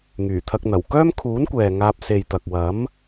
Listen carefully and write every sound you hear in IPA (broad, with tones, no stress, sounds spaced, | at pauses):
ŋ yː˨˩ t̪ʰ ɐ˧ k̚ n̪ ɐ˨˩ w k œː˥ m kʰ uː˨˥ n kʷ ɛː˨ ŋ aː˧ p̚ s e˨ j t̪ ɐ˨ k̚ w ɐ˨˥ m